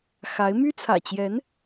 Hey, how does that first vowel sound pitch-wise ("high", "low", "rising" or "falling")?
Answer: rising